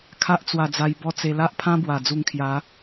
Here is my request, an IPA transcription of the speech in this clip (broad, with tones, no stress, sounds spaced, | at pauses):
kʰ a˦ ʔ t͡s w a˧ d͡z a˧ j b ɔ˦ t͡s e˧ l a˦ ʔ pʰ ã˦ b w a˨˩ d͡z u˧ ŋ kʰ j a˨˦